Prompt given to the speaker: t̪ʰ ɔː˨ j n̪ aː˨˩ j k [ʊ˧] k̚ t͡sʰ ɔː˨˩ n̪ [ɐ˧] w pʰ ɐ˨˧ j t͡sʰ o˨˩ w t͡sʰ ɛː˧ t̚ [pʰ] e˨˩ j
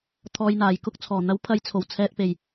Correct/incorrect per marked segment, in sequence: incorrect: ʊ˥, incorrect: ɐ˨˥, incorrect: p

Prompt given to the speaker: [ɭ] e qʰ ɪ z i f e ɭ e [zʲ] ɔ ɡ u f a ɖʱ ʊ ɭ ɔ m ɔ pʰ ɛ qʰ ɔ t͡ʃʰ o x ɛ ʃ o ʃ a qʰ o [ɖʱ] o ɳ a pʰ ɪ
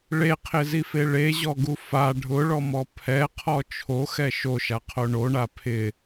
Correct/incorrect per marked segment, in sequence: correct, incorrect: ʑ, incorrect: ɳ

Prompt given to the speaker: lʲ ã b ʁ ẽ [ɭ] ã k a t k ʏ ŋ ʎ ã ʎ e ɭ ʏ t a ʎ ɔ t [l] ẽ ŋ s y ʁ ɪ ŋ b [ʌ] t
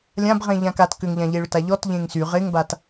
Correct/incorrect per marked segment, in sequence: incorrect: ʎ, incorrect: ʎ, incorrect: a

